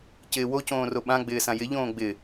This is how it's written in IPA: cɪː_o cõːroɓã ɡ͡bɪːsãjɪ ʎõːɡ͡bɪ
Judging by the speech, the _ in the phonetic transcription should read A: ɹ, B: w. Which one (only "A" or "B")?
B